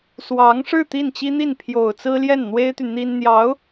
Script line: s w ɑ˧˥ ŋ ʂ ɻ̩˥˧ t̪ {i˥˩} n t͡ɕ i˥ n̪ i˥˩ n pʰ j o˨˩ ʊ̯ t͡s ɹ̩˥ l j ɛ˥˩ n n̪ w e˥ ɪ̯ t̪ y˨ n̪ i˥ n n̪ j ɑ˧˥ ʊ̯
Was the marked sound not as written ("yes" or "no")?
no